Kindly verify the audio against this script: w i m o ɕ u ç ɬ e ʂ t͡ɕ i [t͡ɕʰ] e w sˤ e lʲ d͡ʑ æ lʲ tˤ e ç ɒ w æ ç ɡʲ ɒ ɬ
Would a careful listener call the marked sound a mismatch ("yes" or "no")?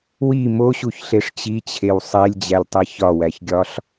no